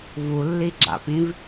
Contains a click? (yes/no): yes